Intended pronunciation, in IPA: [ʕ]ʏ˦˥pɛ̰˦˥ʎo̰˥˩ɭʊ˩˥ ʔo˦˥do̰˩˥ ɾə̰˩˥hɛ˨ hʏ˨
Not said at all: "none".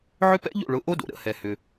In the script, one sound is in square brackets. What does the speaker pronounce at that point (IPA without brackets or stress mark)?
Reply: ʕ